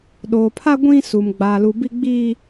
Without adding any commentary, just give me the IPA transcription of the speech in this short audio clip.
ɗo˨pʰa˦ ɡʷĩ˦su˨m ɡ͡ba˨lu˨bi˦ ɡ͡biː˦

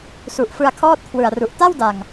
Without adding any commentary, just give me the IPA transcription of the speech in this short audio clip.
su˨˩ʔfɯ˧a̯ kʰɔː˥˩t̚kʰwɯ˨˩a̯ru˨˩ʔ ta˥˩wda˨˩ŋ

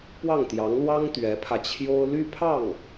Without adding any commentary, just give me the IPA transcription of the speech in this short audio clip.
pwɑ˥˩ŋt̪jɑ˧˥ŋlwɑ˥ŋ t̪ɥɛ˧˥pʰä˧t͡ɕʰjo˥ʊ̯ ly˥pʰɑ˥˩ŋ

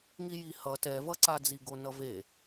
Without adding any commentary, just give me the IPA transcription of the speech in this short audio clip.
ŋijihʌ tɛvʌǀad͡zi ɡonʌve

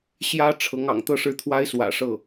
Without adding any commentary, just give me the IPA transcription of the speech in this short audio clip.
ɕjä˥ʈ͡ʂʰɤ˧˥ŋ ɑ̰˨˩ŋt̪ɤ˥˧ʂɻ̩˥˩t̪ʰwa˥ɪ̯ swä̰˨˩ʂɤ˥˩

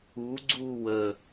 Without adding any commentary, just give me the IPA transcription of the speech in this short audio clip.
u ɡ͡ǀuːwə

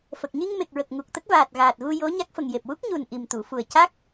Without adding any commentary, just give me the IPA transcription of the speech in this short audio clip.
fə˨˩k̚ ɲi˧ŋme˨˩k̚ɹə˨˩k̚ ŋu˨˩k̚t̪ə˦˥k̚vaː˨˩t̚ ɣaː˨˩t̚ ɣu˧ jo˧˥ɲa˦˥k̚fə˨˩ŋ je˨˩p̚ wu˦˥k̚ɲu˨˩n ʔi˨˩mt̪u˨˩˨fu˨˩ə̯ ca˦˥k̚

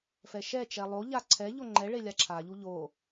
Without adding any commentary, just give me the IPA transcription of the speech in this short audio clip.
fɛʃɛt͡ʃɛ lˠoʎa ǀʰɛʎo ŋ͡ǃɛ ɭelʲaǁʰaʎu ʎo

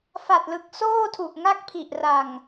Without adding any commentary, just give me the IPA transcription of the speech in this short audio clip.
fa˨˩t̚lɯ˨˩k̚soː˥˩tʰu˨˩ʔ ŋa˥˩k̚pʰi˨˩ʔ ra˨˩ŋ

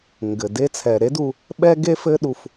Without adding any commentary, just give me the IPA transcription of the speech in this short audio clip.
ŋɡɘ˨ de˧t͡sʰɛ˨ɾe˦du˧ | ɓɛ˦ɡe˦fɘ˦ ɗu˦f

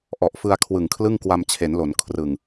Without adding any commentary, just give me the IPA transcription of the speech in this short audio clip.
ʔɔ˨˩ʔfɯ˧a̯ kʰwɯ˨˩ŋkʰlɯ˥˩ŋ kwa˧mt͡ɕʰe˩˦nlo˩˦n kʰrɯ˨˩ŋ

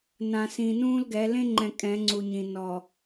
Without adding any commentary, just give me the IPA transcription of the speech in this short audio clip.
nã˨sĩ˨nũː˦lɡɛ˨˦ lẽ˦ŋ͡ǃɛ̃˨ kʼɛ̃˨˦ŋ͡ǀu˨ɲĩ˨ nɔ˨

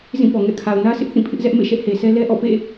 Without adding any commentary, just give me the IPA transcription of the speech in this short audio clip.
zĩ˦˨pɔ˨ ŋɛ̰˦˨kʰa˨ʊ̯ nä˦sʰɪ˦ʔ θĩ˦˨pʰɪ˦ʔzɛ˦ʔ mḛ˦˨ʃɛ˦ʔhe˨sʰɛ˦ lɛ˦ʔɔ̰˦˨pḛ˦˨

